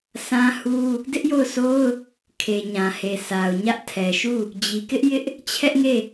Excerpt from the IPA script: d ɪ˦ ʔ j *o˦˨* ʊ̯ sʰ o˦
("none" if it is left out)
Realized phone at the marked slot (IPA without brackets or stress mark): o˦˨